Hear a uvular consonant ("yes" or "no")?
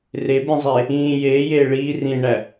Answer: no